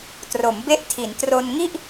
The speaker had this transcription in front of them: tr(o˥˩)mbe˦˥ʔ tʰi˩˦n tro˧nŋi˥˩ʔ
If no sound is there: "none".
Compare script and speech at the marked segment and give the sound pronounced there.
o˩˦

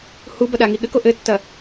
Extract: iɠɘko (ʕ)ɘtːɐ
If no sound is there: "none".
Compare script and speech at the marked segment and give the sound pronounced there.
ʔ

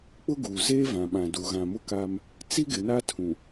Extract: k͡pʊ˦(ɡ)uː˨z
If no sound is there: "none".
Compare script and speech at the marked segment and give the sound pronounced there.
ɡ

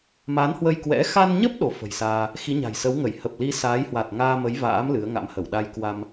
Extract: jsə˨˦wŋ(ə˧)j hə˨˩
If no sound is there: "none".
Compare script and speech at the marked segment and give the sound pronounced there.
ə˧˩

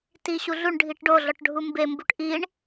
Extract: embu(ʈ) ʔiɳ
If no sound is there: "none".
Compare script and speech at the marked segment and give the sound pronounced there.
ʈ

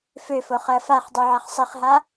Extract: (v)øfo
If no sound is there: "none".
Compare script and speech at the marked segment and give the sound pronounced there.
f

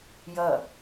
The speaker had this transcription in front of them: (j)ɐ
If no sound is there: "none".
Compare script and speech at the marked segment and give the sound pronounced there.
j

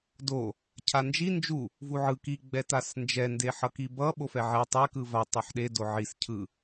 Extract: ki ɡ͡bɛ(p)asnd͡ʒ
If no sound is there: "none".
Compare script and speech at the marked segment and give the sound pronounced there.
t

